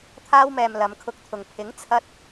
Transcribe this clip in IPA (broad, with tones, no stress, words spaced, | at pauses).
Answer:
t̪ʰaː˧wmɛː˨m lɐ˨˧mkʰʊ˧k̚t̪ʰʊ˨ŋ pʰɪ˨˥ŋt͡sʰɐ˧t̚